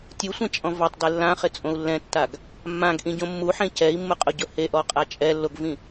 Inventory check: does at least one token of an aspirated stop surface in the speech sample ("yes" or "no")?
no